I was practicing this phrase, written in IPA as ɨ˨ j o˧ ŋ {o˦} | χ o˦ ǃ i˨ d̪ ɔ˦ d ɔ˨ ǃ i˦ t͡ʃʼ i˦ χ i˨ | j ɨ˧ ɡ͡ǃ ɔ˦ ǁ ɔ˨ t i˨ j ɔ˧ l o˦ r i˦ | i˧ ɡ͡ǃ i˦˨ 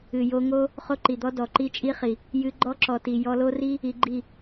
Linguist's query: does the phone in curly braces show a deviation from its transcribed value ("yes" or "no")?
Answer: no